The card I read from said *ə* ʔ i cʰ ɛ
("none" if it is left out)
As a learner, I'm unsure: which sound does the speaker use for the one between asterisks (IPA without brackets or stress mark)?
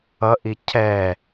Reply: ʌ